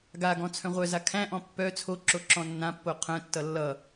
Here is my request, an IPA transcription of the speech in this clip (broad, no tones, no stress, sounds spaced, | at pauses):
ɡ a ɡ ɔ̃ t͡sʰ œ̃ ʁʷ œ z a kʰ æ̃ ʔ ɔ̃ pː œ t͡sʰ o ǁ o ǁ ɔ̃ nː ã pː o qʰ œ̃ tː ʌ lː ʌ